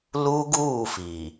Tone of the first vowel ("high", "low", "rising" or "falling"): high